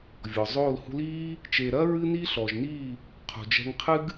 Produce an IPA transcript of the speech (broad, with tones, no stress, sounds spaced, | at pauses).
vʲ ɔ˨ zˤ oː˦˨ l h ṳ˧ l iː˦ | t͡ʃ e˨ ɾ ɐː˦ ɹ ɨ˦ n iː˦ ɬ ɔ˨ ʒ n iː˦˨ | qʰ ṳ˨ d͡ʒ ɛ̤˧ ŋ qʰ ɨ˦ ɡ